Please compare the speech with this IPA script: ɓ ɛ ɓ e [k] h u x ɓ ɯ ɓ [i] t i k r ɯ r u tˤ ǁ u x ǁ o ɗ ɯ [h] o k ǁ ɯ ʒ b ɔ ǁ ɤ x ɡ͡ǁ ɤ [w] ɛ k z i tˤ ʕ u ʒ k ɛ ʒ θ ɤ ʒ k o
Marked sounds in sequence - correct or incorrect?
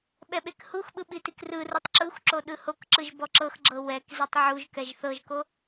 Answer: correct, correct, correct, correct

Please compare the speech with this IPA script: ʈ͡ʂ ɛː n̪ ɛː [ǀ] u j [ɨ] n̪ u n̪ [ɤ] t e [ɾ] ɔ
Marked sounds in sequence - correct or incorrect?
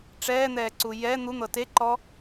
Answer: correct, incorrect: ɛ, correct, incorrect: ǃ

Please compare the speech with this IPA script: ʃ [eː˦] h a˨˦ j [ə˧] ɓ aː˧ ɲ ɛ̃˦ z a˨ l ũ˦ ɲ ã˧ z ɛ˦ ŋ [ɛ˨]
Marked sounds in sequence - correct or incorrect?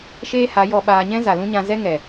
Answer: correct, incorrect: ɔ˧, correct

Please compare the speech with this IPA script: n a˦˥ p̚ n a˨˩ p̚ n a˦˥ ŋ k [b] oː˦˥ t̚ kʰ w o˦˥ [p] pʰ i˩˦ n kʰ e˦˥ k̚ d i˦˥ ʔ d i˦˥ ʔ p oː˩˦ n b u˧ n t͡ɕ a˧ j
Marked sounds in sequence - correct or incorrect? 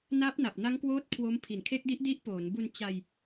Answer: incorrect: w, incorrect: m

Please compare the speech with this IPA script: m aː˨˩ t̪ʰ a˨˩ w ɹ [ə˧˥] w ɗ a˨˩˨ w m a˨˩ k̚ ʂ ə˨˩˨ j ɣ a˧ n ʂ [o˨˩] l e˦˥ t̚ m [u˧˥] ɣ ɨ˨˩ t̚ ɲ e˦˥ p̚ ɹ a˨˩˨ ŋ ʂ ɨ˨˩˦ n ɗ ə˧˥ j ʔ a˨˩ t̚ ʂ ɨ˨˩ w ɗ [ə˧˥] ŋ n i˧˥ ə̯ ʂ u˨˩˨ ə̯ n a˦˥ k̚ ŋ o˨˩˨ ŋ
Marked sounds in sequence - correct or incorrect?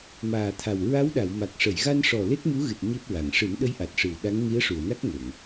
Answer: incorrect: a˧˥, incorrect: ɔ˨˩, correct, incorrect: a˧˥

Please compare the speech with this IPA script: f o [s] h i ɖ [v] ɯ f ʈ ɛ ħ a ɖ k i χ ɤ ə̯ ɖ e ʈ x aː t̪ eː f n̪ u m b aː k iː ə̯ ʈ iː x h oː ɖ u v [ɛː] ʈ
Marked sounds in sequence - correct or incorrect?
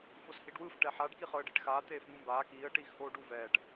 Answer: correct, incorrect: w, correct

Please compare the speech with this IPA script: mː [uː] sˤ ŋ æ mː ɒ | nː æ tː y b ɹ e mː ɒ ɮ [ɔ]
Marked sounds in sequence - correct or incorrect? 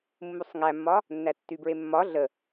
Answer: incorrect: u, incorrect: ə

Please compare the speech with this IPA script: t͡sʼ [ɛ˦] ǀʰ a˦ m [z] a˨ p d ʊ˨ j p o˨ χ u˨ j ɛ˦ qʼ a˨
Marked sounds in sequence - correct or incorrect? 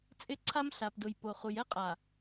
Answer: incorrect: ɪ˦, incorrect: ɬ

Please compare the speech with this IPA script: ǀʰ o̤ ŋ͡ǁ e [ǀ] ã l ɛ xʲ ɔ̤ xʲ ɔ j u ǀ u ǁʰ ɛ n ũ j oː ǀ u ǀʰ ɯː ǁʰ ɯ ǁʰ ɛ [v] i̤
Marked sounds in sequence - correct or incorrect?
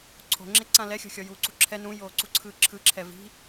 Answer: correct, correct

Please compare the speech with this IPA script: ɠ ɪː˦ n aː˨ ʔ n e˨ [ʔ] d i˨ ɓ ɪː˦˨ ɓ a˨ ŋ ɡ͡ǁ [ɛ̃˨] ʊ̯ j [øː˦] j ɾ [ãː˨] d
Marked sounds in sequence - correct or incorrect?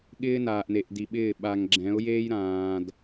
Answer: correct, incorrect: ɛ̃˨˦, incorrect: eː˦, correct

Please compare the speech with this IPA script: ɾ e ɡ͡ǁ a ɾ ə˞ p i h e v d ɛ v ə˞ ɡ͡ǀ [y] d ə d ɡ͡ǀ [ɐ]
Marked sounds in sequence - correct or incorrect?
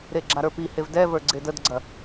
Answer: incorrect: e, correct

